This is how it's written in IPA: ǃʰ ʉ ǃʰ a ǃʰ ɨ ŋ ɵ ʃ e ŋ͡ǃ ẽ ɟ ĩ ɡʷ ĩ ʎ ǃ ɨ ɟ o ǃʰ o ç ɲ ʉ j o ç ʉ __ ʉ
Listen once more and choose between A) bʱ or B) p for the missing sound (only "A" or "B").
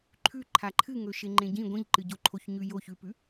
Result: B